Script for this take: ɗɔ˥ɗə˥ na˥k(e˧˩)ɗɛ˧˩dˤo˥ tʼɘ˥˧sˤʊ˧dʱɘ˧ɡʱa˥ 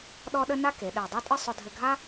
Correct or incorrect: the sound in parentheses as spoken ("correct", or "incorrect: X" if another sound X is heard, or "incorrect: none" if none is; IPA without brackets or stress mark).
incorrect: e˩˧